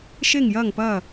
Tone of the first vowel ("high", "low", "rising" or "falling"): falling